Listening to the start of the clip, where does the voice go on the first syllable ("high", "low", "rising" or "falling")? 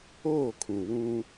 falling